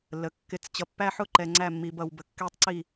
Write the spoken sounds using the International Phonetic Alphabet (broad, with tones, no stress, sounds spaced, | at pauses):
lː ə˨ kː ɪ˦˨ t͡s t͡ɕ ʌ˨ pː æ˦ ħ ʊ˦˨ ǃ ɛ˨ ŋ͡ǀ æ˦˨ mː i˨ b ʌ˨ w b ə˨ kː ɛ˦ tˤ ǀ i˦˨